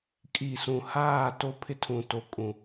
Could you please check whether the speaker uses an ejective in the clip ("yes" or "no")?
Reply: yes